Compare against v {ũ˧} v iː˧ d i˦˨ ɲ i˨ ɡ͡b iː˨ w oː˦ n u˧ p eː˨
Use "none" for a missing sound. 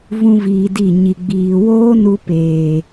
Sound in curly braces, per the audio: ũ˧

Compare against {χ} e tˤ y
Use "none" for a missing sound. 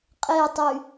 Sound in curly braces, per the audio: qʼ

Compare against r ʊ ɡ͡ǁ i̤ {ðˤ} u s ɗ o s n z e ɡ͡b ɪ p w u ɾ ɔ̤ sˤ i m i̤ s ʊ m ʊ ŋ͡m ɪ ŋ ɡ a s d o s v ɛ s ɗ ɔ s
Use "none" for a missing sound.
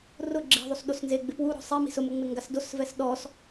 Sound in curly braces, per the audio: ðˤ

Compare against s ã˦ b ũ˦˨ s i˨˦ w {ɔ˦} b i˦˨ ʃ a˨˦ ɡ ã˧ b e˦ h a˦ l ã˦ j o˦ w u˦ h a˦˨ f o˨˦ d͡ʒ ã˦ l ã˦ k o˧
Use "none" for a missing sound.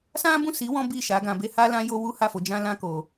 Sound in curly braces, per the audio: ɔ̃˦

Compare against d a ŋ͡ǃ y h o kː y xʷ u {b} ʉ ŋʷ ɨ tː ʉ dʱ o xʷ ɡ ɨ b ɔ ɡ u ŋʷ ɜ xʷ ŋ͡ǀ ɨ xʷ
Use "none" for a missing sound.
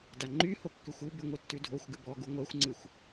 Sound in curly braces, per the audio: b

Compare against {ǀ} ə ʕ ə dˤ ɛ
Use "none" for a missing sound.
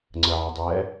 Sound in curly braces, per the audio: ŋ͡ǀ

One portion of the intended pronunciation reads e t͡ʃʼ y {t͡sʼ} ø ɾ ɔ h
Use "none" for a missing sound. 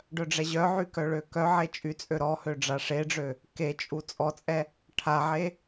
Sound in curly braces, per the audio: t͡sʼ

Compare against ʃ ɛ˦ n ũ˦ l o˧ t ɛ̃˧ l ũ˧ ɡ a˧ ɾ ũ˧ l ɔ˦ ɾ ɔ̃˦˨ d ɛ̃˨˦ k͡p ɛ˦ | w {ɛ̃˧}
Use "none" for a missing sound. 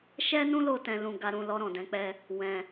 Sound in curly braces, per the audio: ɛ̃˧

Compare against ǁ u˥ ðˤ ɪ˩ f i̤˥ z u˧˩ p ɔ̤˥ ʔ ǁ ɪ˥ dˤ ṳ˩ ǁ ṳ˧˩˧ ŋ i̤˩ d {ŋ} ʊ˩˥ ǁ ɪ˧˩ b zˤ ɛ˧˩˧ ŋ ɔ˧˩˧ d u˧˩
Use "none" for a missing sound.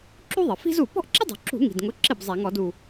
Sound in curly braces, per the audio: ŋ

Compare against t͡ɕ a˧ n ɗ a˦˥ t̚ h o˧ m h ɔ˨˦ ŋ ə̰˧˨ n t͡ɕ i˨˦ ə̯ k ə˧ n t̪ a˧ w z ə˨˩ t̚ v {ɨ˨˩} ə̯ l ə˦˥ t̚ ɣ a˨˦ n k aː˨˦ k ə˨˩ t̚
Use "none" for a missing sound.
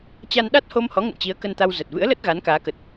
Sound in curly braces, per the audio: ɨ̰˧˥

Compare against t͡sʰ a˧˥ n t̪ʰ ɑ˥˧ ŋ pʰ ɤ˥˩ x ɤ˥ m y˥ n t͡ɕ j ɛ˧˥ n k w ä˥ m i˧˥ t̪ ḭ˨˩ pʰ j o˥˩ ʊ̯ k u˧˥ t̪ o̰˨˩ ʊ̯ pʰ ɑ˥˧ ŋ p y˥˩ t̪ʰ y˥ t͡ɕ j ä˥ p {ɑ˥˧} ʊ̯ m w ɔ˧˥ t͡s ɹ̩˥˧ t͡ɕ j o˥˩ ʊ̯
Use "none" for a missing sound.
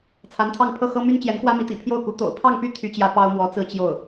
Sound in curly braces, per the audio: ɑ˥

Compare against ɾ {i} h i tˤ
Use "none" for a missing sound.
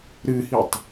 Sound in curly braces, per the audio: ɨ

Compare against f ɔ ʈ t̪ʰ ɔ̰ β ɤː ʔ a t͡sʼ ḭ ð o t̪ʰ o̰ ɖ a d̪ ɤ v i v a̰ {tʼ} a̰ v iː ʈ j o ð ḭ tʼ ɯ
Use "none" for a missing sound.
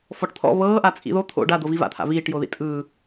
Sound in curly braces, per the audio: t̪ʰ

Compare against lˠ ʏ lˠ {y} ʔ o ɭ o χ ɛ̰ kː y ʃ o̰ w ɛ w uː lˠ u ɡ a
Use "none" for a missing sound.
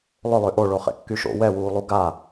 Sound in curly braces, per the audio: ø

